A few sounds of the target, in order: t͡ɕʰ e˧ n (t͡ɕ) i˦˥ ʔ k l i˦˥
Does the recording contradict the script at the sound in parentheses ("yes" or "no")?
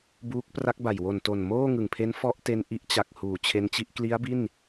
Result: no